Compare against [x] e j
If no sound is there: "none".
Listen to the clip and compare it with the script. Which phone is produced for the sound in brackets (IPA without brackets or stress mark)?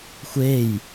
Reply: xʷ